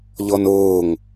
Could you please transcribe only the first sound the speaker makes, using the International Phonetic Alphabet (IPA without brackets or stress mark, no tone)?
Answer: ʎ